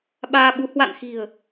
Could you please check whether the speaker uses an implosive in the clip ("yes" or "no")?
yes